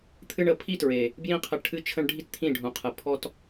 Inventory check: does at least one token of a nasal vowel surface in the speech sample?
yes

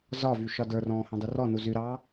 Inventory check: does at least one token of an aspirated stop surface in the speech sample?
no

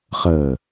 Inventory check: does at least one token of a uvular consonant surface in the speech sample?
yes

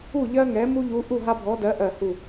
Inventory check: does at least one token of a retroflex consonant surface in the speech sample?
no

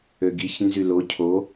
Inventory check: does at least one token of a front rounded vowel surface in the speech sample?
yes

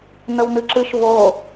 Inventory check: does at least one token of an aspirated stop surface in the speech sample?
no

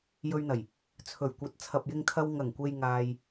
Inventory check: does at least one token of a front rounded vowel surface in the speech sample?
no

